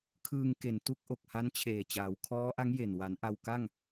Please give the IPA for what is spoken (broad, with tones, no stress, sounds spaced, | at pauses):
kʰ ɯː˧ ŋ k e˨˩ n t u˦˥ k̚ ʔ o˨˩ k̚ h a˦˥ n t͡ɕʰ eː˨˩ t͡ɕ aː˩˦ w kʰ ɔː˦˥ ʔ a˦˥ ŋ j e˨˩ n w a˩˦ n ʔ a˧ w k a˥˩ ŋ